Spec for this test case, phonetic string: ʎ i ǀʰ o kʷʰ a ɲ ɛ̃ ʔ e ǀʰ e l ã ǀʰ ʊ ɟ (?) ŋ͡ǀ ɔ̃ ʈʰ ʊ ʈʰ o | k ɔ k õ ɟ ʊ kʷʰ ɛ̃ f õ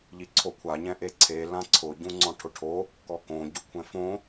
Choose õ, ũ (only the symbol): ũ